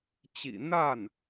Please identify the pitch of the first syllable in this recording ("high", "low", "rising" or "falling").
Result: low